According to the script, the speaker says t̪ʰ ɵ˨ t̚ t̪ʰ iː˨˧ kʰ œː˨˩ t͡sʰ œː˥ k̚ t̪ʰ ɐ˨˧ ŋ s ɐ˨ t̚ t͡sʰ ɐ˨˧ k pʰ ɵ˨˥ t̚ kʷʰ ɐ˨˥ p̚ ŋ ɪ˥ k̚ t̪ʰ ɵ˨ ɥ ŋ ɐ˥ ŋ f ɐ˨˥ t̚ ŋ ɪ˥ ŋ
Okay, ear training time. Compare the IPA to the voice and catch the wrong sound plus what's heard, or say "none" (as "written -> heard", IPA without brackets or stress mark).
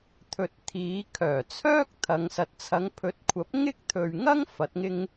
k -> ŋ